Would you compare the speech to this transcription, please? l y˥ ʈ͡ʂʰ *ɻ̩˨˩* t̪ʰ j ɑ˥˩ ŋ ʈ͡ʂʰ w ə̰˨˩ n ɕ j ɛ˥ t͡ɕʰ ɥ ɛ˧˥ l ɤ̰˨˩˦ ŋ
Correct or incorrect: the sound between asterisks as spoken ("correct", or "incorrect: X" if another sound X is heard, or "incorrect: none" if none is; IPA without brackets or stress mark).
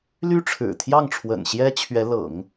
correct